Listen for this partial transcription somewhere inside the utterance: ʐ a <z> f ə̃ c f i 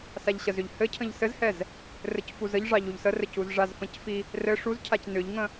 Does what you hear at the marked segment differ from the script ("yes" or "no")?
no